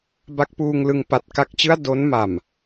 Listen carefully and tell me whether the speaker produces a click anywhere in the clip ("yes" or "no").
no